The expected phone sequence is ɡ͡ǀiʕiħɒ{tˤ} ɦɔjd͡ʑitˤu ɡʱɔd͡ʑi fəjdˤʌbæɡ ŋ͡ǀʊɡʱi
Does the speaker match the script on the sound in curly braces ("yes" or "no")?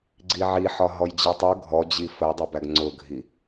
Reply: no